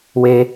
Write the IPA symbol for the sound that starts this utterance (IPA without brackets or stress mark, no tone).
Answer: w